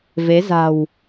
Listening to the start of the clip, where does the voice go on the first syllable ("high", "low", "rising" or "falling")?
rising